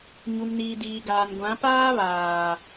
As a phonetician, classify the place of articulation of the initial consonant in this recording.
palatal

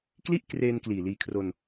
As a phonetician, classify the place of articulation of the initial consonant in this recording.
velar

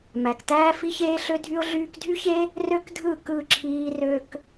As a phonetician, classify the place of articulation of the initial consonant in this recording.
labial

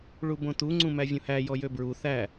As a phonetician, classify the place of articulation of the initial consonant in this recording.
retroflex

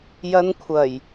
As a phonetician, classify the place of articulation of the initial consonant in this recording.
palatal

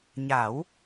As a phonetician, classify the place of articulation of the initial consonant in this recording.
palatal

